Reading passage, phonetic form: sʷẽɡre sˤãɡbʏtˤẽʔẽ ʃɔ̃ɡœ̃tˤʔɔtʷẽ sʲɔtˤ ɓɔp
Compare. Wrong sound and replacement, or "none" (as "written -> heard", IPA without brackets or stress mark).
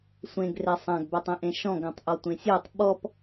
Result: none